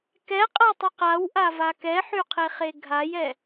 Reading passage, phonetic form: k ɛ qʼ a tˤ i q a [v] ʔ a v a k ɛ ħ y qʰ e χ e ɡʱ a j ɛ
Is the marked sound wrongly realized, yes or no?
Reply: yes